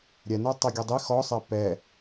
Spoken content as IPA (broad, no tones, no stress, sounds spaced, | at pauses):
ɾʲ ɛ n ɤ tˤ ɛ ɡʲ ʉ dˤ i x ɔ sˤ ɛ p ɛ